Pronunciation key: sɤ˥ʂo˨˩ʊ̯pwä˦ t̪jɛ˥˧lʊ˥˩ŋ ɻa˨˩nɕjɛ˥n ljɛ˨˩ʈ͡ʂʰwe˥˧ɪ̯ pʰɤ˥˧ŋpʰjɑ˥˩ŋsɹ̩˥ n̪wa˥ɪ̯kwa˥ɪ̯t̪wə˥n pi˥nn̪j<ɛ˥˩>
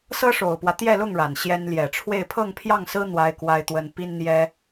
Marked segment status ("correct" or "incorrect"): incorrect